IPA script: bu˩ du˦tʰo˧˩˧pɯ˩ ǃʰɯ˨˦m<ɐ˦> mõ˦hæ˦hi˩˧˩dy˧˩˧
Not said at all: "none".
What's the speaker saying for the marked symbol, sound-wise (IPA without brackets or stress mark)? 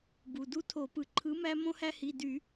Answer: æ˦